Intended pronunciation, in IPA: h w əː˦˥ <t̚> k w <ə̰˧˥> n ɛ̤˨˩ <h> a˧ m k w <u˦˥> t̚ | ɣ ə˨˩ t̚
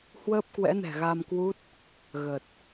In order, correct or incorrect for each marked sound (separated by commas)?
incorrect, incorrect, incorrect, correct